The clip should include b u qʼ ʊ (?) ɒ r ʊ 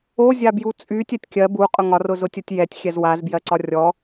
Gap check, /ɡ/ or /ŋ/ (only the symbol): ŋ